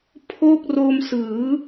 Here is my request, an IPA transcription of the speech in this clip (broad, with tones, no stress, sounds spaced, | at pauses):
pʰ o˥˩ k̚ r o˧ m s ɯː˩˦